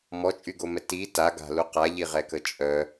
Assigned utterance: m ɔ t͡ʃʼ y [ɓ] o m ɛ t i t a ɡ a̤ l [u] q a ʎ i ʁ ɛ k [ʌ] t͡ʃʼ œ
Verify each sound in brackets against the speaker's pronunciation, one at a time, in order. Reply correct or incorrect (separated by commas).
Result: incorrect, correct, incorrect